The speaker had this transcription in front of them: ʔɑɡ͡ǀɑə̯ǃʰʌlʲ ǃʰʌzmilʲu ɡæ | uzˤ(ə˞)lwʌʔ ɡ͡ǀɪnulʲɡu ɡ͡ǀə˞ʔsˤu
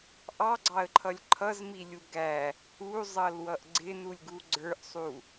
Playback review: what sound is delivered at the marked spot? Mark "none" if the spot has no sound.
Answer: ʌ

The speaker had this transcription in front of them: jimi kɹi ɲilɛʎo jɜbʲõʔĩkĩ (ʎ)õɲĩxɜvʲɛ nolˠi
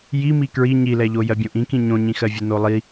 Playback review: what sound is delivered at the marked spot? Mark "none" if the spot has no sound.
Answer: ɲ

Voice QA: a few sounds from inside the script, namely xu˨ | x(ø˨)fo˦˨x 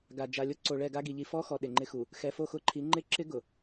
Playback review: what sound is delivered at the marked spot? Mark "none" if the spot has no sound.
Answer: ɛ˨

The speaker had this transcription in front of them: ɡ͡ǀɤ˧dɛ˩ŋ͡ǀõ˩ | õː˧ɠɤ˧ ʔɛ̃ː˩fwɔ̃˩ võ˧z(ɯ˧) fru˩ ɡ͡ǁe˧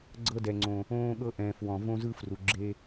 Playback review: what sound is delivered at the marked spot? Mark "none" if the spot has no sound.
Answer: ɯ˧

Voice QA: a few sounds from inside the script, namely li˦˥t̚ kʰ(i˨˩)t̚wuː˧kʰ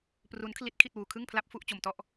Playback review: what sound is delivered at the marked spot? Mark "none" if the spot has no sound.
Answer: i˥˩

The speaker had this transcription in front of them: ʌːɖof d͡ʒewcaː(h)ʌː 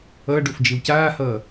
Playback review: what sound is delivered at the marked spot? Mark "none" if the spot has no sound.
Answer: h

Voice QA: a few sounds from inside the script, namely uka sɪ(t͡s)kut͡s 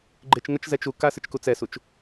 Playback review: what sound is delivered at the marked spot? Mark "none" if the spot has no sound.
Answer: t͡ʃ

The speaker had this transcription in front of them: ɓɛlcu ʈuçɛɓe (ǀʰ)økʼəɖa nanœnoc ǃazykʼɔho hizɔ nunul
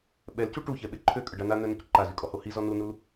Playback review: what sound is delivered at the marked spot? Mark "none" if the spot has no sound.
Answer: ǃʰ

